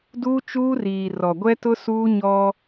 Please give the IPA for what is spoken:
d uː˦ t͡ʃ uː˦ r iː˨ r ɔ˨ ɡʷ ɛ˦ t ʊ˦ s uː˦ ɲ ɔ˦

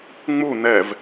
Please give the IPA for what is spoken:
ŋ͡m u n ɛ v

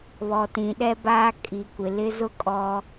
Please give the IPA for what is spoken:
β ɔ˨ t ĩ˨ ɗ ɛ˦ b aː˦ kʼ i˨ kʷ ɪ˨ l ɪ˦ z ʊ˦ kʼ ɔ˦

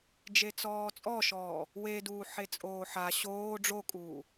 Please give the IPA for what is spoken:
d͡ʒ e t͡s ɔː t͡sʼ ɔ ʃ ɔː | w e d uː ħ e t͡sʼ oː ħ a ɕ oː ɖ͡ʐ o kʼ uː

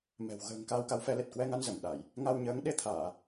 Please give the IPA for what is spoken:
m ɛ̤˨˩ w ɣ ə̤ː˨˩ ŋ k aː˧ w k a˨˦ w f ɛ˨˦ l e˨˩ t̚ k w ɛ˧ ŋ a˧ n z ə˧˩ m ɗ a˧˩˨ j | ŋ a˧ w ɲ əː˨˦ ŋ ɗ e˧ t̪ʰ aː˧˩˨

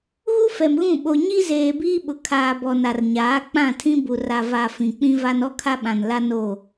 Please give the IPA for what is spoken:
ɣ u˦ f ɛ˨ m ɣ ũ˦˨ ɓ o˨ ɲ i˦ z eː˨ b iː˦ ɓ ʊ˨ kʰ aː˨ b ɔ˨ n a˨ r ɲ aː˨˦ k͡p ã˦˨ tʰ ĩ˦ b u˨ r a˨ v a˨ f ĩ˨ k͡p ĩ˦ v a˦ n ɔ˦ kʰ a˦ ɓ ã˨ n l a˦ n o˦˨

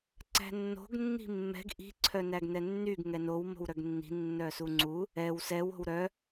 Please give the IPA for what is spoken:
ǀ æ̤ nː o̤ ɡ nː i̤ mː ɛ̤ ɡ ʔ i̤ ǀʰ œ n æ ɡ n ɛ nː y ɡ ŋ ɛ n o w m o̤ w ɾ œ ɡ nː i̤ nː œ s u ŋ͡ǀ u | ɛ w s ɛ w o̤ w ɾ œ

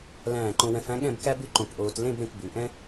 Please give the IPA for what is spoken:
l æ̃ː˧˩ ǃ õ˧ w ɛ̃˧ f æ̃˥ ɠ ɛ̃˥˧ b k æ˥ b ʉ˥˧ ǃ õ˧˩ k ʔ oː˧ t l ẽ˥˧ b ɾ ẽ˧ k b ʉ˩˧ ʔ ɛ̃˥

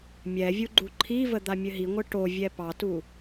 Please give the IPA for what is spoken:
mʲ ɛ vʲ u ɡ͡ǃ u ǃʰ i v ə d̪ a mʲ ɘ ɦ i ŋʷ ɘ ʈ o vʲ ɛ p ɑ t u

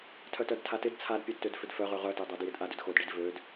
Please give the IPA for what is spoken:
tʰ œ t œ d tʰ a t ɪ d t͡sʰ a d pʲ ø d t ø d f ʏ d f œ ʁ ø ʁ œ t e dˤ œ d j ɪ d ʔ a d ʏ d x o d ɖ i d v ø d

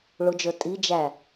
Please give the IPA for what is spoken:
ɭ ʊ d͡ʒ ə˞ tʼ i d͡ʒ æ

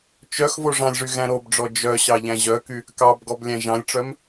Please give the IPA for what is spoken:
t͡ʃ œ x v o ʐ ɑ̃ lʲ ʐ y ɣ æ̃ ɾ o b ɖ͡ʐ ɔ d͡ʒ œ ɕ ɑ ʎ æ̃ ʑ œ k y | k ɑ b ɡ ɔ b lʲ æ̃ ʒ ɑ̃ lʲ ʈ͡ʂ œ m

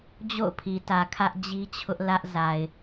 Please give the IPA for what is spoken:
d͡ʑ o̰˦˨ ʊ̯ pʰ i˨ t ä˨ kʰ ä˦ ʔ d͡ʑ i˦ t͡ɕʰ ʊ˦ ʔ l ä˦ ʔ z a˨ ɪ̯

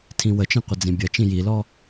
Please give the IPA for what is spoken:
tʰ ĩ w ə t͡ʃ ĩ qʷ ə d͡z ĩ bʲ ɐ t͡ʃ ĩ j i l ɔ

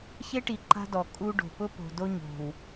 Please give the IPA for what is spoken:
ç e˦ ʈ i˨ ǃ a̤˦ d ɔ˨ kʼ u˦ ɖ o̤˨ p ʊ˦ p o̤˨ d o˦ ɲ o̤˨ w

